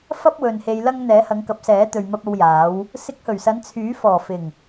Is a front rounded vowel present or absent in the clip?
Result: present